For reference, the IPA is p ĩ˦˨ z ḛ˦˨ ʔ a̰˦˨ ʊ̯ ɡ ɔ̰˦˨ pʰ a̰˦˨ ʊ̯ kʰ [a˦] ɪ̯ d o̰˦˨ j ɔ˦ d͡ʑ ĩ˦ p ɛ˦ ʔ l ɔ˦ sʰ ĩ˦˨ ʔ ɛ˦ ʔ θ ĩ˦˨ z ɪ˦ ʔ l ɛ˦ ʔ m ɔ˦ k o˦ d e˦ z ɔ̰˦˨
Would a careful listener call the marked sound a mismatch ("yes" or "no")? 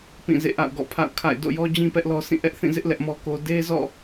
yes